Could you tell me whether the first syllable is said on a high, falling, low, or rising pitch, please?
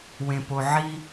low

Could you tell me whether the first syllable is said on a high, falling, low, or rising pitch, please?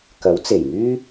rising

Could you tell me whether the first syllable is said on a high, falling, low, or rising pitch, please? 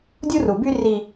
high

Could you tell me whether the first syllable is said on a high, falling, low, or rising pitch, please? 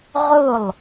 falling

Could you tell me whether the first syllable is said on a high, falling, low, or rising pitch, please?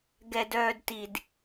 low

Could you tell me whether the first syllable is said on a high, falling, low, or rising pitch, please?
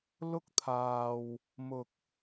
high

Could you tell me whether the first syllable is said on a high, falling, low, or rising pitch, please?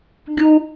high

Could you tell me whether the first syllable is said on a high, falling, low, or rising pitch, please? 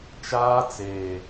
high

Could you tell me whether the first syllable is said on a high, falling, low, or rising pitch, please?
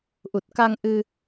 low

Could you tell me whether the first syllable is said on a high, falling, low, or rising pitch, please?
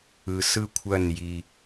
low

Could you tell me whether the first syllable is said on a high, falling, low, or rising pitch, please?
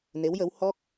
rising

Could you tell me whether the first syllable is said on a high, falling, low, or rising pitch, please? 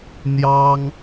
high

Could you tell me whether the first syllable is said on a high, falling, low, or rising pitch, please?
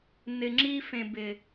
low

